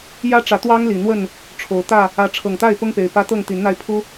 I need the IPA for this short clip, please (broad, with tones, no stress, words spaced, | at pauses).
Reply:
jä˦ʈ͡ʂä˨˦ t̪wɑ˦ŋli˨˩n̪wə˥˨n | ʈ͡ʂʰo˨˩ʊ̯t̪ä˥˨ | ä˨˦ʈ͡ʂʰɤ˨˩ŋt̪a˥˨ɪ̯ pʊ˦ŋpe˨˩ɪ̯pä˦ t̪ɤ˥˨ŋ t̪i˨˦nn̪a˧ɪ̯ pʰu˦